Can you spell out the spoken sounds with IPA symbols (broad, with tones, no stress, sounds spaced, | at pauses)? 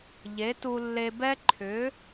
ʎ e˨˥ t u˧ lː e˧ b ɛ˦˥ ǃʰ ʏ˨˥